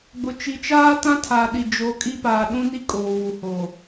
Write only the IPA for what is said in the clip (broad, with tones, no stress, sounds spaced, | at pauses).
ɡ͡b ʊ˨ t͡ʃ i˨ t͡ʃ aː˦ t ã˦ tʰ aː˨ ɗ i˨ d͡ʒ o˨ kʼ i˦ p aː˨ ɗ ũ˦ n i˦ kʼ oː˨ w u˨ h o˨